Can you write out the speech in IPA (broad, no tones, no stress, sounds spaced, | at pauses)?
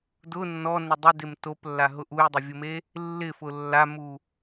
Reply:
d ʊ nː ɔ n ɪ dˤ ɪ d ɪ m t o p lː a ɦ ʊ ʔ u j dˤ ʊ vʲ ʊ m e | lː ɪ f ʊ lː a m u